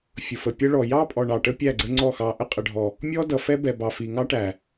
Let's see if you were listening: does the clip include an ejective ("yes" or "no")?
yes